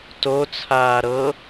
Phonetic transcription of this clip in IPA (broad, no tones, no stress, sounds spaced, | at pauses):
t o t͡sʰ aː ɾ ɤ